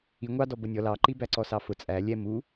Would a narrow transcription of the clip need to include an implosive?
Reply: no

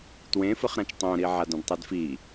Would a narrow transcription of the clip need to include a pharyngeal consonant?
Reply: yes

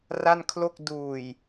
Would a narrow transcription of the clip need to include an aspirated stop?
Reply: yes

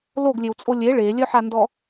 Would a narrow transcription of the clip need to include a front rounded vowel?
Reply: yes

